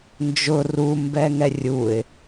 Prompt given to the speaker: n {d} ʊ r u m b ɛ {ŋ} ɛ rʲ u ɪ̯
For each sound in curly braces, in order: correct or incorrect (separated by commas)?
incorrect, correct